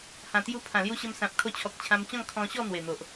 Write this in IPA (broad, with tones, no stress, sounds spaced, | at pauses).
h ã˨˩ t̪ j u˧ pʰ ã˨˩ l j u˧ ɕ ə˧ m s ã˨ p̚ kʰ o˧ t͡ɕʰ ɔ˨ k̚ t͡ɕʰ ã˧ m t͡ɕ ɔ̃˥˧ ŋ kʰ ɔ̃˧ ɕ ɔ˥˧ n̪ w e˨˩ n̪ o˨ ʔ